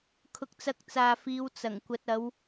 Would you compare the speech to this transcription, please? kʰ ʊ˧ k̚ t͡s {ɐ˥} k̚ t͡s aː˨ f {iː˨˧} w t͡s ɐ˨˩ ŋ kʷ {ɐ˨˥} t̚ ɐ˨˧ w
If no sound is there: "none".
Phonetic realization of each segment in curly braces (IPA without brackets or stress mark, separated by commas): ɐ˧, iː˨˧, ɐ˨˥